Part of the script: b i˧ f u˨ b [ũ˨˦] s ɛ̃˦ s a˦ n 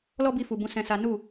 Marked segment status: correct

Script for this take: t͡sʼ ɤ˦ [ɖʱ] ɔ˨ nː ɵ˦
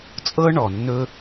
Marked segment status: incorrect: ɳ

